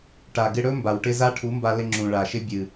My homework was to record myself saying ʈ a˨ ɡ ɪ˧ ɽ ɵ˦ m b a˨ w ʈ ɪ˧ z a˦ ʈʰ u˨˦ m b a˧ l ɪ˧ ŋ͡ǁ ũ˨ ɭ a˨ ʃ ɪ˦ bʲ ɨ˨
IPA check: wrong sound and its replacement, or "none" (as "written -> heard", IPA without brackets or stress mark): none